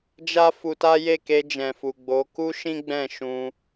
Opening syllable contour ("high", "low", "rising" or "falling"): high